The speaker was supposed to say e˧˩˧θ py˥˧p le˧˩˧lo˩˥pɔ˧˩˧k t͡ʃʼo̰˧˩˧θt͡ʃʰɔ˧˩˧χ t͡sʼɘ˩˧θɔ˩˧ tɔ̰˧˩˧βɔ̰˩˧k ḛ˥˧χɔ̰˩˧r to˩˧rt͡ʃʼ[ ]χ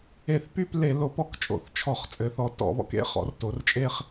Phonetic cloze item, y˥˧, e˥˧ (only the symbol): e˥˧